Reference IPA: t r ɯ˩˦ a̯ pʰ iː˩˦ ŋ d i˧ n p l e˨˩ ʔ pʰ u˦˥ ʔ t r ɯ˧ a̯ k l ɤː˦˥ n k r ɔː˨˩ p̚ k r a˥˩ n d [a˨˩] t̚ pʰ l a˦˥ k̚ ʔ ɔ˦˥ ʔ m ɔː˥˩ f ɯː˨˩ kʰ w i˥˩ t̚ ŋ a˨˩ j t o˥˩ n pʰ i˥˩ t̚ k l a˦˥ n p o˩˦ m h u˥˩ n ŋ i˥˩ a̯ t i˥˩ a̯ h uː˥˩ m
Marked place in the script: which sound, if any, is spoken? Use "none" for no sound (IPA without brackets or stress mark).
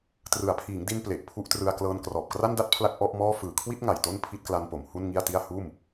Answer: a˥˩